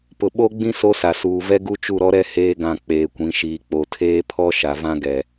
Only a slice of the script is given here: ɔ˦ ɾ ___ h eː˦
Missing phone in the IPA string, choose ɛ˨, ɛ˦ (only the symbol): ɛ˦